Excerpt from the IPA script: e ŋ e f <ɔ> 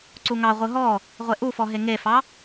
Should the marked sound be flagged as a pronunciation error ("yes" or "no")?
yes